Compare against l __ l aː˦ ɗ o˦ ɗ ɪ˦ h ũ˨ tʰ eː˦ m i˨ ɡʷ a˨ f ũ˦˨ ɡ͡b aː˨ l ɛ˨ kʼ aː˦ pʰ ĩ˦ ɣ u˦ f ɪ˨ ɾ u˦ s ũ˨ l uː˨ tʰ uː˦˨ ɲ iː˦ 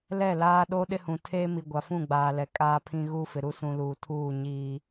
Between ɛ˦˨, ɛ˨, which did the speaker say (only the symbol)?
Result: ɛ˦˨